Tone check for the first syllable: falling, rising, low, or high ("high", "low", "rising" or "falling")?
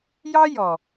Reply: high